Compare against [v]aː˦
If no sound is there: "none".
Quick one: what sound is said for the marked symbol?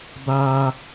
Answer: b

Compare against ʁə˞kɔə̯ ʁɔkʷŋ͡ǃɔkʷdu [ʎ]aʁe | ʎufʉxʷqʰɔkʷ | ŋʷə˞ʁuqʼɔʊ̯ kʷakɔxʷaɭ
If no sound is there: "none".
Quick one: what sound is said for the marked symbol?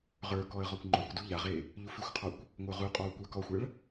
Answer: ʎ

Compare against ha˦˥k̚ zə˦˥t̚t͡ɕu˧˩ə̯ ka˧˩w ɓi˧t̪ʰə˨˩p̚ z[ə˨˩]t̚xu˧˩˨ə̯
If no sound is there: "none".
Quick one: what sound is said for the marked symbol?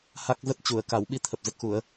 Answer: ə˨˩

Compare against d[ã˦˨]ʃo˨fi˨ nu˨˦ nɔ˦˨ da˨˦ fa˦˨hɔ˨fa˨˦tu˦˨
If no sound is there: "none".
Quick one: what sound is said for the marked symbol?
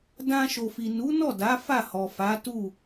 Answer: ã˧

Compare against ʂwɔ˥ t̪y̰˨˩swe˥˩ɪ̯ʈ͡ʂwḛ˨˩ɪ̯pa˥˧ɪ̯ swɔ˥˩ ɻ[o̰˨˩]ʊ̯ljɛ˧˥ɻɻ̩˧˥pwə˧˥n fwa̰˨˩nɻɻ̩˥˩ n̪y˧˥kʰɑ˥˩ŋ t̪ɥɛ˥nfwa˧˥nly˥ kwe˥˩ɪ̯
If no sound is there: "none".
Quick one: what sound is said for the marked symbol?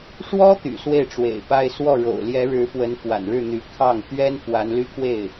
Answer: o̰˨˩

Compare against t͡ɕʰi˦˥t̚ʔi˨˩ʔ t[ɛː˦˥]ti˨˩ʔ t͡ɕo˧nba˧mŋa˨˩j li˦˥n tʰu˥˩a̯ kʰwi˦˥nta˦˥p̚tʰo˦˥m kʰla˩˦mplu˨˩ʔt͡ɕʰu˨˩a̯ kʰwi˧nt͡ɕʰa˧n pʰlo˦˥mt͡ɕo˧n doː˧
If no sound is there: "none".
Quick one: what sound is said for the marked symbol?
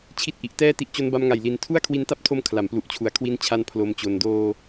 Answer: ɛː˦˥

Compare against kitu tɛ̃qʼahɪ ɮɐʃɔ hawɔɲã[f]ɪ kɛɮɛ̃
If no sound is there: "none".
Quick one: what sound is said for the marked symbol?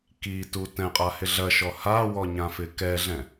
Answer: f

